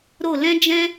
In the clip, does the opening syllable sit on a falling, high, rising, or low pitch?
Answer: falling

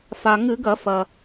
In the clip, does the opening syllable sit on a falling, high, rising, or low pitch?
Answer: low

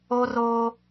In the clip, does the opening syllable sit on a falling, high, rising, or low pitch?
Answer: high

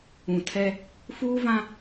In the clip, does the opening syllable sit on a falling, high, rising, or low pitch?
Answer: low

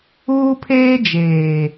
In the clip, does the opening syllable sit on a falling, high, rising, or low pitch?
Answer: high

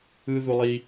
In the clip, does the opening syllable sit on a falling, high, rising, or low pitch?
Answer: high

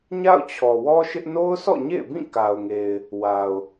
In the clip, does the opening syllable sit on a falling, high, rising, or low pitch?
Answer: falling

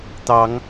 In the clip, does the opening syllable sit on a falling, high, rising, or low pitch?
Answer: rising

